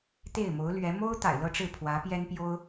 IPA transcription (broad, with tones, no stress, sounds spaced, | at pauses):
t̪ e˥˩ ɪ̯ m o˧˥ ʊ̯ l ɥ ɛ˧˥ m o˥ ʊ̯ t̪ a̰˨˩ ɪ̯ l ɤ˥˧ ʈ͡ʂ ɻ̩˥˩ pʰ w ä˧˥ p j ɛ˥ n p j o˥ ʊ̯